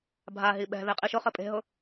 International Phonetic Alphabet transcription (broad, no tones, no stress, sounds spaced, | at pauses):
bʱ a ɦ i ɓ ɛ̤ ð e qʼ i ʃ ʊ χ ɘ pʼ e̤ ɦ ʊ